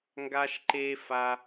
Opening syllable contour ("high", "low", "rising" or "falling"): high